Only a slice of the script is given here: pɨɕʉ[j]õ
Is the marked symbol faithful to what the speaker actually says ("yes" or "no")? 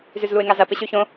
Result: no